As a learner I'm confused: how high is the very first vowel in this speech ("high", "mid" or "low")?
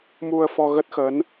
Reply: high